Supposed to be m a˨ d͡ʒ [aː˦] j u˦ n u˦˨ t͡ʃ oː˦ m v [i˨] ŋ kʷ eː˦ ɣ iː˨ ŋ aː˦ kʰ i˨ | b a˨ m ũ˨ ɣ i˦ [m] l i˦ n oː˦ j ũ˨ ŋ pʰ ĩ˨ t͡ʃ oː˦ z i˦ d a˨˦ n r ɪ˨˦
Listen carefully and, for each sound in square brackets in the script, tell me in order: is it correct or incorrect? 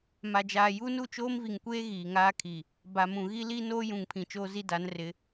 incorrect: aː˨, correct, incorrect: none

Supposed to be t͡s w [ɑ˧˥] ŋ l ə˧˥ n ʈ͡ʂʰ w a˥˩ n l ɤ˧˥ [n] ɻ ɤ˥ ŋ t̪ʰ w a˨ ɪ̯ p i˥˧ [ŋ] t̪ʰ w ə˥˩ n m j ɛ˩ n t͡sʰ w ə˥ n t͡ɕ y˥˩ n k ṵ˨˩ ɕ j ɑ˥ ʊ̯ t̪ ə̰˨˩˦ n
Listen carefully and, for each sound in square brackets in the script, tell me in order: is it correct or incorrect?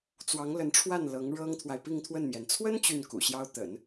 correct, incorrect: ŋ, correct

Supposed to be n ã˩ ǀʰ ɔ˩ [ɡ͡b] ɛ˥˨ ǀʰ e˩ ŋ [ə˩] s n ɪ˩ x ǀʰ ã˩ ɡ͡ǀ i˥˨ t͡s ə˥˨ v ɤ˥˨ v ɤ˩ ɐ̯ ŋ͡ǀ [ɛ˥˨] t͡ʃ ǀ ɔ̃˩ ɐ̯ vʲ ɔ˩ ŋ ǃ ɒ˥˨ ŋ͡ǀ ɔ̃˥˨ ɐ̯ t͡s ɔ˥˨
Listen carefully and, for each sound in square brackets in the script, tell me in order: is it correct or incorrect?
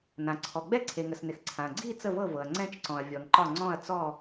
correct, correct, incorrect: ɛ̃˥˨

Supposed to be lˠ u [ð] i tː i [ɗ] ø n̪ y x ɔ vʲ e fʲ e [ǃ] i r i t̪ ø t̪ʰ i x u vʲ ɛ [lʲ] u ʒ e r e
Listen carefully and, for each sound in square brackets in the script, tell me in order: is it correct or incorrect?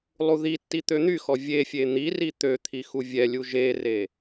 correct, incorrect: t̪, incorrect: n̪, correct

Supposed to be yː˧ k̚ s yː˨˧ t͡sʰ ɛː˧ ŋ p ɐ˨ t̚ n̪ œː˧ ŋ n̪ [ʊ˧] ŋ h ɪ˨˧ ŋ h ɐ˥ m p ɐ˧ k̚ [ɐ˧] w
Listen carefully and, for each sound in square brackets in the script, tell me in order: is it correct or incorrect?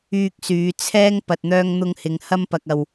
correct, correct

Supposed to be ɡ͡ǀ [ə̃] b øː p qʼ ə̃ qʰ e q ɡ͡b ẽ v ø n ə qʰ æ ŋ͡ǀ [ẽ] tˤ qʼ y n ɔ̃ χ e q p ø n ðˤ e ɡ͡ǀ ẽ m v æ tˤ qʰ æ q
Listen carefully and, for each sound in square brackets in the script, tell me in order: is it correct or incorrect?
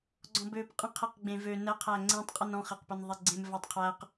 incorrect: ɔ̃, correct

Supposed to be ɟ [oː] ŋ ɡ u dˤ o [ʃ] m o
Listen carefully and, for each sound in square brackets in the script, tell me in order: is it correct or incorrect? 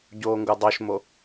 correct, correct

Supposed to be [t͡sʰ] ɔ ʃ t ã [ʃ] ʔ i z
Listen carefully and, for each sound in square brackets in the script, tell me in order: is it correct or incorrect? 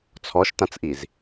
correct, incorrect: t͡s

